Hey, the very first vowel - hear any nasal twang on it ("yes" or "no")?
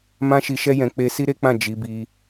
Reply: yes